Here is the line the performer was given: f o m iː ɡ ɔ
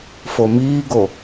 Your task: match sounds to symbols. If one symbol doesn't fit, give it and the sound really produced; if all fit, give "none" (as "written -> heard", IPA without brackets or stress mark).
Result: ɔ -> o